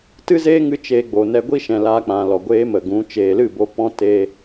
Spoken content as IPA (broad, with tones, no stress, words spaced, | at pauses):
tɨ˦zeː˦ŋɨ˧ t͡ʃeː˧ɡ͡bo˨ nɛ˧ɡʷi˦ʃɛ̃˨ laː˧k͡pã˨lɔ˨ ɡʷeː˦mə˨ɡũ˨˦ t͡ʃeː˨lɨ˦˨bo˧ pɔ̃˦ teː˧